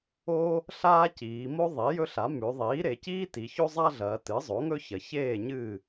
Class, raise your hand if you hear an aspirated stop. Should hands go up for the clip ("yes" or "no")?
no